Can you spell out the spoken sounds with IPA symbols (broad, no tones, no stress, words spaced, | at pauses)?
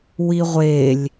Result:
wiʁʷelʲ